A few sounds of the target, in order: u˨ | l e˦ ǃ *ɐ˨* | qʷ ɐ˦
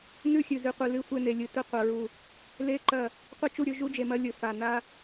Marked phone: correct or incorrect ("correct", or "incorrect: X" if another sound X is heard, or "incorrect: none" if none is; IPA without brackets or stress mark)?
incorrect: ɐ˦˨